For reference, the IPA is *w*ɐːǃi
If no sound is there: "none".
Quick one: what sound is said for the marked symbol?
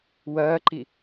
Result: w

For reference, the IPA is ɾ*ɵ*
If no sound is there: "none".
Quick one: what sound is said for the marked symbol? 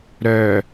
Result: œ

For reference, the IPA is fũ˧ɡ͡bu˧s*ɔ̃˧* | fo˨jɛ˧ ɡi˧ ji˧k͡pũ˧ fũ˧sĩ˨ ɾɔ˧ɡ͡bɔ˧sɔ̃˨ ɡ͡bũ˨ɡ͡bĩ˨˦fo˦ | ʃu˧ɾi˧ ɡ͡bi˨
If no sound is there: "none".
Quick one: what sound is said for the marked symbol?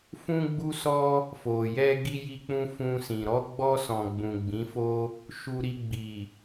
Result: ɔ˧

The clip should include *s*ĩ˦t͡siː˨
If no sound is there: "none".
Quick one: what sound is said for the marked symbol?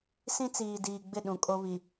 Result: s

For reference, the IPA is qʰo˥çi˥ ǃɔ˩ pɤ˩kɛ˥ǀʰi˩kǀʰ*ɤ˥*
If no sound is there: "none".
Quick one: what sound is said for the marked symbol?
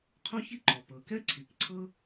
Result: ɤ˥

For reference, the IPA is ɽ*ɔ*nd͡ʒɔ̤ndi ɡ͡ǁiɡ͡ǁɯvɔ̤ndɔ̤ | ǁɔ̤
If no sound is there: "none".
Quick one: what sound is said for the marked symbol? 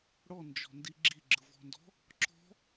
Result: ɔ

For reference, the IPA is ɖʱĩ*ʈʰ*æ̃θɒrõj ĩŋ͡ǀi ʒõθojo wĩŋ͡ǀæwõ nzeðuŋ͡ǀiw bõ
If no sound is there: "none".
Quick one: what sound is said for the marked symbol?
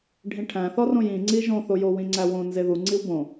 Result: ʈʰ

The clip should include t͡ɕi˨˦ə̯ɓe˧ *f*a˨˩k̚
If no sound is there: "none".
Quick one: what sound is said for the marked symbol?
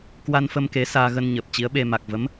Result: m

